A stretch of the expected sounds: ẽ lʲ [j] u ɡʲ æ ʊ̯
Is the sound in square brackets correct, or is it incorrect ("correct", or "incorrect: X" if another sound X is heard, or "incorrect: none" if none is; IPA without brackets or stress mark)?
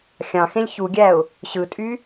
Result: incorrect: ç